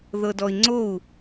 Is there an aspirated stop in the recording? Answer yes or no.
no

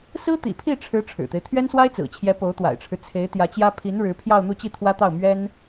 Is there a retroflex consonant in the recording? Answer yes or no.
yes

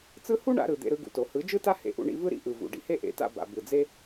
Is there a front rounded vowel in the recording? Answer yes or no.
no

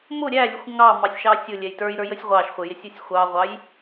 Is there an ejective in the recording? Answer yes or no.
no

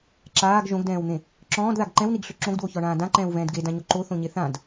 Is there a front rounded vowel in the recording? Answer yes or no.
yes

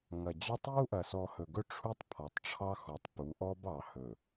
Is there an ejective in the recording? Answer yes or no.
no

